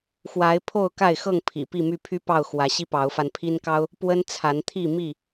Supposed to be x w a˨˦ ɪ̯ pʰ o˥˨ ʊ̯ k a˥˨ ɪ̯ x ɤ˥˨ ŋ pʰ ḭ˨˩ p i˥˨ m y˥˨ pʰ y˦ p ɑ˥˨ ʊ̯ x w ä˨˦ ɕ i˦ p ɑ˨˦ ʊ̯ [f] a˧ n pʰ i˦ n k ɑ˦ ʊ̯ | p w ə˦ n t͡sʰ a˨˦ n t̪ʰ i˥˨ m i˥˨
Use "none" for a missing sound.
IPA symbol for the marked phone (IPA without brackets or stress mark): f